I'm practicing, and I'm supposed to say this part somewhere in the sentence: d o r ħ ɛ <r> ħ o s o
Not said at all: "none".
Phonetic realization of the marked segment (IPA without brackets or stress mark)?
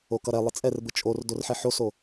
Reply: none